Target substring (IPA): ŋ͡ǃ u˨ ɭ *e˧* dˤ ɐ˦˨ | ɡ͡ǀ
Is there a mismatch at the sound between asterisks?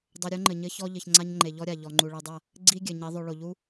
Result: no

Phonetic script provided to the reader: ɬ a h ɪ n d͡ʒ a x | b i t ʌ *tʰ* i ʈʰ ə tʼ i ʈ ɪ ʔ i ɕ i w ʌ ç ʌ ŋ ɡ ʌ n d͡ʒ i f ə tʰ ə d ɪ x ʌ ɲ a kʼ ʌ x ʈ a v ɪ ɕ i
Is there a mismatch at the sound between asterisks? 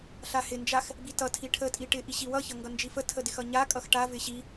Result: no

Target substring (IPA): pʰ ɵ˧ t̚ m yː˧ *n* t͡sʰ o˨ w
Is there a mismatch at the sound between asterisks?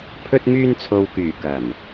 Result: no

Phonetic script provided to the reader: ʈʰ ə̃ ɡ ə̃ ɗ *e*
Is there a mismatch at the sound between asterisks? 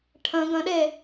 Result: no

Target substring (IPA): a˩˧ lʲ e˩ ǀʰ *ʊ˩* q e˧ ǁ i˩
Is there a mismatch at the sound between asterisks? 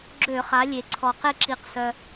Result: yes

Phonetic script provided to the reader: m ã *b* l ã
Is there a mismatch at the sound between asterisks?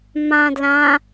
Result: yes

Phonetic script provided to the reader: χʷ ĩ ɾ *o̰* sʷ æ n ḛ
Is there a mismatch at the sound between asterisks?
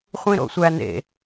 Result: no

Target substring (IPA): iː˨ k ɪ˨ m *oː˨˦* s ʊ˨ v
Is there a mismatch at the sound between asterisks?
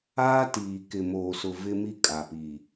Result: yes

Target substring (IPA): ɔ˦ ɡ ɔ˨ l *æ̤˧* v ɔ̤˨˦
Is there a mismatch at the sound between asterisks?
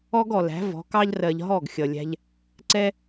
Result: yes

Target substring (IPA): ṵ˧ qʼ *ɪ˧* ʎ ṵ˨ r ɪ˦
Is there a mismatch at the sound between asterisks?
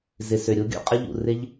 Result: yes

